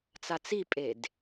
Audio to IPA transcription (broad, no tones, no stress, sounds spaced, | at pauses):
t͡s a t͡s i pʼ e d